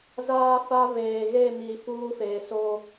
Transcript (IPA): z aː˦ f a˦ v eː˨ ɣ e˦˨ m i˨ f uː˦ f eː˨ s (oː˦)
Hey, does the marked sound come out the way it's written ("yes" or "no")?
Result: yes